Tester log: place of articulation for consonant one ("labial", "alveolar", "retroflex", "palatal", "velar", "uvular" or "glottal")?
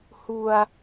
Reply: glottal